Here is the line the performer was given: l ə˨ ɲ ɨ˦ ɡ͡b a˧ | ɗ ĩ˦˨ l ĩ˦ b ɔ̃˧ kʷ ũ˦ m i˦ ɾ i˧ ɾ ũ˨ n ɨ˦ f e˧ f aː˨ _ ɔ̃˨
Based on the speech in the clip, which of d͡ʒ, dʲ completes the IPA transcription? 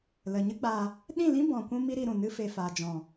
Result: d͡ʒ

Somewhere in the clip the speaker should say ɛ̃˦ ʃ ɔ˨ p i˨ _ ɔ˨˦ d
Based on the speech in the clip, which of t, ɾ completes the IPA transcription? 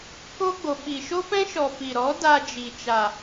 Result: ɾ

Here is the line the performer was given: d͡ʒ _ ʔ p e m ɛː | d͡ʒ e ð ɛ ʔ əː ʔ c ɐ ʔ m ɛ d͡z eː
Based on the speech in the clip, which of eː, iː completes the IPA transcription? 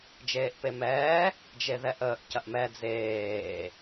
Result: eː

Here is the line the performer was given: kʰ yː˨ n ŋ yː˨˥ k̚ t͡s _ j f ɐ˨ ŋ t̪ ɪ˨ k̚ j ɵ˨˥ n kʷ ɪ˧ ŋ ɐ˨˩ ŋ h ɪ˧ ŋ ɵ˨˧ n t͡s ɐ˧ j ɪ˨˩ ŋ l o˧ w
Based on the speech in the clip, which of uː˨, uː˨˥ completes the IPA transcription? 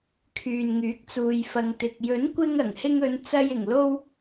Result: uː˨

